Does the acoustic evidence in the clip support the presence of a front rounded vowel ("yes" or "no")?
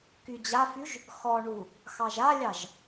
yes